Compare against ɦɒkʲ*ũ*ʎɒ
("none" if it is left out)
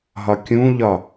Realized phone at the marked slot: ũ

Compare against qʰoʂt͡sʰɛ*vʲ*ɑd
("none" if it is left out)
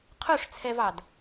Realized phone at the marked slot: v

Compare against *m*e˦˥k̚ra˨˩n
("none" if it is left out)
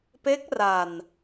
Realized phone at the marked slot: p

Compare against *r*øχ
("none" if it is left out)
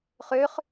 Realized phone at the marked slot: χ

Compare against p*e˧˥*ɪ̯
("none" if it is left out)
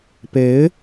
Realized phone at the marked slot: e˧˥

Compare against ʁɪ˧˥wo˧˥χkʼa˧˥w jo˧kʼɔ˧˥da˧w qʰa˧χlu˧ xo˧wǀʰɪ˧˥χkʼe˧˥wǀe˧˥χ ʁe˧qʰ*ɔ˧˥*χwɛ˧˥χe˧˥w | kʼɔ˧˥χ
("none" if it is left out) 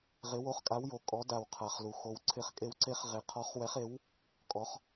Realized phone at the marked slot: ɔ˧˥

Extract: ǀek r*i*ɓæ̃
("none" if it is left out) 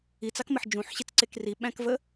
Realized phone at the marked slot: i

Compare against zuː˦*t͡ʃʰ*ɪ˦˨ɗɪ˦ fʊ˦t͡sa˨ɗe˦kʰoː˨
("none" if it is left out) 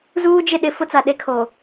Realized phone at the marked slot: d͡ʒ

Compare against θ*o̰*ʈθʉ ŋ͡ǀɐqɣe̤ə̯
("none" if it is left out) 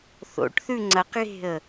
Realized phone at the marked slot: o̰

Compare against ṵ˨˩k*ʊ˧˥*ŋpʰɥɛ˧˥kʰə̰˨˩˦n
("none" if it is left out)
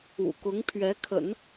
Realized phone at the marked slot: ʊ˧˥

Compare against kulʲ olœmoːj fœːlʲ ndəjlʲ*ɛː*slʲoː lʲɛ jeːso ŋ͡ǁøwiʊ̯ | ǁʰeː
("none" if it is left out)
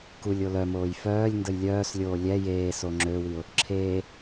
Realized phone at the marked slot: œː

